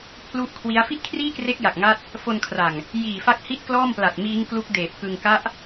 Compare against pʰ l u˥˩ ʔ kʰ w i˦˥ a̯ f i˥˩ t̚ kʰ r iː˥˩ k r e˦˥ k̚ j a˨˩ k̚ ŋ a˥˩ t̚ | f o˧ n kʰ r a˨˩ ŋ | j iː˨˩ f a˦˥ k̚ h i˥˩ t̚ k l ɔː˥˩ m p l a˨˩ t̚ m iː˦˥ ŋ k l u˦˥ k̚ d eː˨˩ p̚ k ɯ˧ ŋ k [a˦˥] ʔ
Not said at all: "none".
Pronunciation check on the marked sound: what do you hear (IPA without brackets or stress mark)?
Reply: a˦˥